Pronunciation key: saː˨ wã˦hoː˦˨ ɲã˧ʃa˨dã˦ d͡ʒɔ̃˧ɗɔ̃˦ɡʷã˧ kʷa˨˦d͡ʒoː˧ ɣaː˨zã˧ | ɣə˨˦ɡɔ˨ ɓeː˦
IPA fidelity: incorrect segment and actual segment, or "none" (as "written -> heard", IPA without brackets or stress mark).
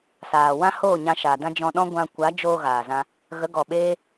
none